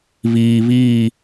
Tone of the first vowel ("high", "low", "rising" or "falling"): low